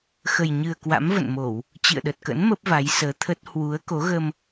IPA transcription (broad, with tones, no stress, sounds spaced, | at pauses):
x ə˨˩ j ɲ ɨ˨˩ ə̯ k w a̰˧˥ m v ə̰˧˨ n m o˧˩˨ w | t͡ɕ ḭ˧˨ ə̯ ɗ ə˨˩ t̚ k ə̰˧˥ n m ə˦˥ p̚ v a˨˦ j s əː˨˦ t̪ʰ ə˦˥ t̚ h w u˨˦ ə̯ k o˨˦ ɣ ə˧ m